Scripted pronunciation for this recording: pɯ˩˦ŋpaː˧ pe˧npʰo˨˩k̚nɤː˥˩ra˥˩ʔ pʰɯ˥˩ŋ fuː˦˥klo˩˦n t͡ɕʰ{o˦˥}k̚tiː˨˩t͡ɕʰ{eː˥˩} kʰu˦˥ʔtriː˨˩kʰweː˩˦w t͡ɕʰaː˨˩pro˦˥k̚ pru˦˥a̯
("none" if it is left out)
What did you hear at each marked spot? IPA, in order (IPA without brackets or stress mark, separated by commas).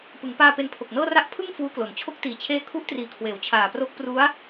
o˦˥, eː˦˥